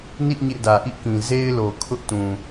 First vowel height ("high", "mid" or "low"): high